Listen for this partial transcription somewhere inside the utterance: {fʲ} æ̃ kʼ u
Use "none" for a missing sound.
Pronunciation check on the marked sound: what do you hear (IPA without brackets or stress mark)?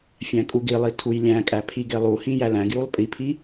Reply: fʲ